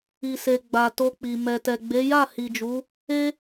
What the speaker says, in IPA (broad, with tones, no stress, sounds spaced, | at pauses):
i˨ s e˨ ɡ͡b a˨ t o˧ k͡p i˨ m ɛ˨ t ɛ˨ ɡ͡b e˨˦ j a˦˨ h i˨ d͡ʒ u˨˦ | e˦